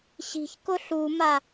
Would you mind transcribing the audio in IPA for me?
ɕ i̤ ç k ʊ ɬ u m a

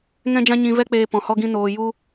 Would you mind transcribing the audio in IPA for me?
ŋ ɛ̃˦ d͡ʒ ã˦ ɲ ĩ˧ v ɛ˦ k͡p eː˧ p ɔ̃˨ h ɔ˦ ɡ ĩ˦ n oː˧ j u˦

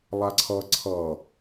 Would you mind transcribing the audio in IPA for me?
lˠ a ǀʰ ʌ ǀʰ ʌ

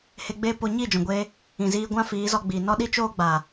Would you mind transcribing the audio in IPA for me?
h e˧ ɡ͡b eː˦ p o˧ ɲ i˦˨ d͡ʒ ɔ̃˨ ɡʷ eː˧ | ĩ˨ z iː˧ ɡʷ ã˦ f iː˨˦ z ɔ˧ ɡ͡b iː˨ n ɔ˦ ɗ i˦ t͡ʃ oː˦ ɡ͡b aː˨

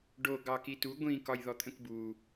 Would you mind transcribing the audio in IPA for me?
ɖ o ɡ ɑ k i t u ɡʷ ĩ k ɒ j ð ɔ t̪ʰ ə̃ k b u

